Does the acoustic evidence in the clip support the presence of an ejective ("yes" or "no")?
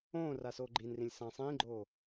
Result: no